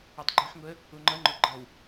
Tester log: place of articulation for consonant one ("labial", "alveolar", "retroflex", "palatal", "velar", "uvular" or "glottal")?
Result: alveolar